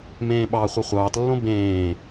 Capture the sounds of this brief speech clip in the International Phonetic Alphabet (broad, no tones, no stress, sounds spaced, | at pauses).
m ẽː ɓ ɑ χʷ e χʷ ɑː t lː õ b ẽː